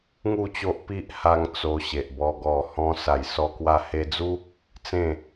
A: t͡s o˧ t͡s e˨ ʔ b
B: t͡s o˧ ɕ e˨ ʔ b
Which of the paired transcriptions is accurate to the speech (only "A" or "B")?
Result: B